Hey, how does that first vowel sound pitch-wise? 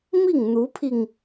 falling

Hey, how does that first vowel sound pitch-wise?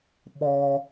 low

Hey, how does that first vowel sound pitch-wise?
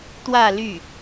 falling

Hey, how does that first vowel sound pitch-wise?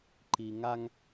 low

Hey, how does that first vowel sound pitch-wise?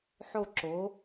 falling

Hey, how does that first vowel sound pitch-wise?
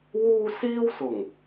high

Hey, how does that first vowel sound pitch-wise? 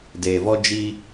low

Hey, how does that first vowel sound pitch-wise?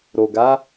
low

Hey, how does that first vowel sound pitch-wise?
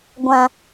low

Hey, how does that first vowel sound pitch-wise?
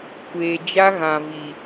low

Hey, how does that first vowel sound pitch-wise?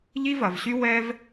high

